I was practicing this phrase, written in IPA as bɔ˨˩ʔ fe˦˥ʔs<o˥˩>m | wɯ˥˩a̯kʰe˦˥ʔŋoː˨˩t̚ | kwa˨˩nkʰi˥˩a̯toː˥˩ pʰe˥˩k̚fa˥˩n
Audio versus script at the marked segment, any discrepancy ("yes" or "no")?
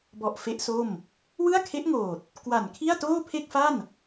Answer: no